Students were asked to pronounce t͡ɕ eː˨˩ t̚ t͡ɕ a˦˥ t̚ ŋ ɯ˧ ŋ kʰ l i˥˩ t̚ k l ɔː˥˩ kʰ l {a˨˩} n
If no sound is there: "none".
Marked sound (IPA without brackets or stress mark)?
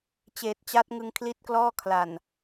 a˨˩